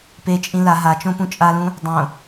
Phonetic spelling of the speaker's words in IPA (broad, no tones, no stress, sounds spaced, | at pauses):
p e t͡ʃʼ ĩ l a ɦ a t͡ʃ õ p ũ t͡ʃʼ a l ũ | dˤ õ